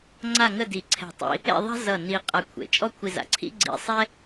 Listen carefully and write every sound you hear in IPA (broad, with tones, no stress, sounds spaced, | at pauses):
ŋ͡ǀ a˥˧ ŋ ə˥˧ d i˧˩ ǀʰ ɛ̤˧˩ tˤ ḭ˧ | ḛ˥˧ ðˤ a̤˥ z ʌ˧˩ n i˧ qʼ a˧ kʷʰ ḛ˩˧ t͡ʃʼ ɔ˥ kʷʰ i˧ z a̰˩˧ ǀʰ ḭ˥ ɡ͡ǀ ḭ˧ sˤ ɛ˥